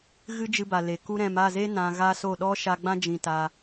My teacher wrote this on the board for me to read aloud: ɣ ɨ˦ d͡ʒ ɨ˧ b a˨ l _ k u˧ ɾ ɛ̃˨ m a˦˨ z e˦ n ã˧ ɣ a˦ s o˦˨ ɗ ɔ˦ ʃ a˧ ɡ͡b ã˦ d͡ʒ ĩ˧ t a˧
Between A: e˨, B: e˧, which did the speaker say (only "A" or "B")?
A